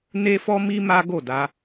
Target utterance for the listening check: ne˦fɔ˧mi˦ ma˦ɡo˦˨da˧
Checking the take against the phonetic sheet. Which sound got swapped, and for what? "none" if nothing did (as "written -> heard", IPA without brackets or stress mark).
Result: ɔ˧ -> ɔ˦